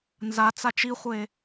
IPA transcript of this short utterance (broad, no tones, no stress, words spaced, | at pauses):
nza t͡sat͡ʃiχʷe